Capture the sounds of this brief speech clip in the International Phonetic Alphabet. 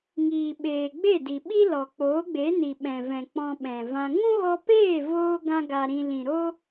ŋ iː˨ ɓ eː˨ ɡ͡b e˦˨ d i˨ ɓ i˦ l ɔ˨ k͡p oː˨˦ ɡ͡b e˨˦ n i˨ ɓ ɛ̃˨ v ɛ̃˨ k͡p ɔ̃˧ ɓ ɛ̃˨ v ã˧ ŋ ũ˦ ɣ ɔ˧ p eː˦˨ v oː˧ ɡ ã˦ ɡ a˧ ɾ ĩ˧ l ĩ˨ ɾ o˦

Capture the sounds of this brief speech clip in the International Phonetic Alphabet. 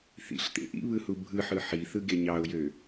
θ ḭ ɬ t̪ ḛ ʔ ḭ β ɯ h u bʱ ɯ ħ ɯ ħ i θ ɯ ɡ e ɲ ɑ ʊ̯ j ø

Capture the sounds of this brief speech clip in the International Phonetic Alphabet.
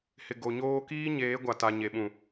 h ɪ˨ ɡ o˨ ɲ oː˦ k iː˦ ɲ eː˨˦ ɡʷ a˨ t a˨ ɲ e˨ ɓ ũ˨

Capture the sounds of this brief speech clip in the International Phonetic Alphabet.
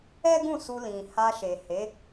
ɛ˦ ɡ ũ˦˨ s u˧ l ĩ˨ h a˧ ʃ e˨ h e˨˦

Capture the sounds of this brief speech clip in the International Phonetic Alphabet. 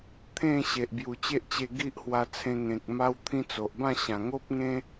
t̪ʰ ẽ˥˧ ɕ e˨ ʔ b j u˨˩ t͡ɕ e˦ ʔ t͡ɕ e˧ ɡ i˦ ʔ h w a˧ t͡sʰ ẽ˧ ŋ ẽ˨ k̚ m a˦ w t̪ʰ ĩ˦ t͡s o˨ ʔ b ã˥˧ ɕ ã˨˩ ŋ o˦ p̚ ŋ ẽ˦

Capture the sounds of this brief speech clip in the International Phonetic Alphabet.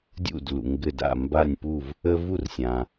dʲ ṵ˥˩ d l ṵ˩ ŋ ɡ ɘ˧˩ d a̰˧˩ m b a˧˩ nʲ p u˧˩ v | ə˦ v u˥˩ r sʲ ã˩

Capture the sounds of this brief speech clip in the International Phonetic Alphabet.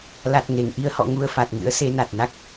l a˨˩ t̚ ŋ e˧˩ ŋ ʔ i˧ ə̯ h ɔ̰˧˨ ŋ u˧ ə̯ f a˨˩ t̚ ŋ ɨ̰˧˥ ə̯ s e˨˦ n a˨˩ t̚ n a˦˥ k̚

